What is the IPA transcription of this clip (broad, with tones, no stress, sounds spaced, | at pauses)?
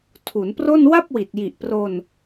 tʰ u˩˦ n p r o˥˩ n w a˥˩ p̚ w i˨˩ t̚ j i˨˩ ʔ p r o˧ n